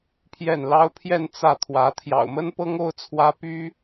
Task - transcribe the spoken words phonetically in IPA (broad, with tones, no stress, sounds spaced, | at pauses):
pʰ j ɛ˥˩ n l ɑ˥ ʊ̯ pʰ j ɛ˥˧ n t͡s ä˥˩ t̪ʰ w ä˧˥ t̪ʰ j ɑ̰˨˩ ʊ̯ m ə˥ n p ɤ˥ ŋ o˥ ʊ̯ t͡sʰ w ä˥ p y˥